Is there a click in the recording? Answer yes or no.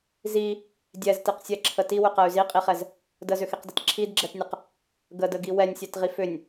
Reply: yes